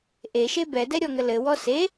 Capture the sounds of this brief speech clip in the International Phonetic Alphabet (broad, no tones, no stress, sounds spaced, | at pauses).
ʔ e ʃ e b ɛ d ɛ ɾʲ ɔ ŋ ə l ɘ w ɔ s e